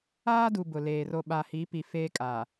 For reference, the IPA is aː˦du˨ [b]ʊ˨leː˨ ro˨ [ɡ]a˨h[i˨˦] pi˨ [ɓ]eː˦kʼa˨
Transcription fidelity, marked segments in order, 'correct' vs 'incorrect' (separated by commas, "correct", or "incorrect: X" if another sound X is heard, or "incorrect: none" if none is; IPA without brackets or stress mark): correct, incorrect: ɓ, correct, incorrect: f